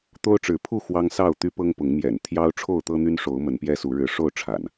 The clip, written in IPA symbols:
t̪ o˦ ʊ̯ ʈ͡ʂ ɻ̩˨˦ pʰ u˥˨ x w ɑ˦ ŋ s ɑ˥˨ ʊ̯ t̪ y˦ p ɤ˦ ŋ p ʊ˨˦ ŋ m j ɛ̰˨˩ n t̪ʰ j ɑ˦ ʊ̯ ʈ͡ʂʰ o˥˨ ʊ̯ t̪ ɤ˦ n̪ y˦ n ʂ o˨˦ ʊ̯ m ə˨˦ n p j ɛ˦ s u˨˦ ɻ ɻ̩˨˦ ʂ o˥˨ ʊ̯ ʈ͡ʂʰ a̰˨˩ n

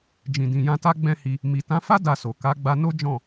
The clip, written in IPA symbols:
d͡ʒ ĩ˨ d ĩ˨ j ã˧ t a˦ ɡ͡b ɛ̃˦ h i˧ | m i˨ t ã˨˦ f a˦ d a˧ s o˨ k a˨˦ ɡ͡b a˧ n o˦ d͡ʒ ɔ̃˦˨

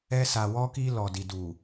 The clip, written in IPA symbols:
ɛ˧ s a˨ w ɔ˧ k i˧ l ɔ˨ d i˨ d u˨

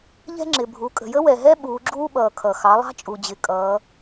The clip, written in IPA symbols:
ʎ ɛ̤˥ ŋ͡ǁ ɪ˩ bʱ u˩˧ kʼ ə̤˩ j ə˥ w ɛ˩ ɦ ɛ˥ ɓ uː˩˧ ɡ͡ǁ uː˥ ɓ ʌː˩ kʰ ʌ˩ x ɑ˩˧ lˠ ɑ̤˥ t͡ʃʼ u˩ d͡ʑ ɪ˩˧ kʼ ʌː˩˧

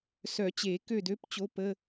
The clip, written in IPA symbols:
s œ˨˩˦ t͡ɕ e˨˩˦ k ø˥˨ d ø˧˥˧ p t͡ɕ o˧˥ p ə˧˥˧

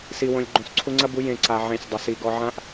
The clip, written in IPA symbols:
s i˨ w õ˨ lʲ ɡ͡ǃ õ˨ s ǀʰ u˧ ŋ͡ǀ ɐ˦ b u˨˦ j ẽ˨ ǀ a˨ ʕ ẽ˦˨ sʲ dˤ ɘ˧ s i˧ ɡ ɔ˧ ʕ ã˦ ʔ

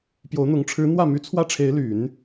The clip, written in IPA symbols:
p j o˧˥ ʊ̯ n̪ ʊ˧˥ ŋ ʈ͡ʂʰ ɻ̩˧˥ n̪ w ä˥˩ m y˧˥ t͡sʰ w ä˥ ʈ͡ʂʰ e˧˥ ɪ̯ l y˨˩˦ n

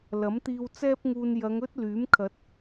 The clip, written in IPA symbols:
l ɐ˨˥ m t̪ iː˧ w t͡s ɛː˥ p̚ ŋ uː˧ n j ɐ˨˧ ŋ ɵ˥ t̚ l yː˨˥ m kʰ ɐ˨˥ t̚

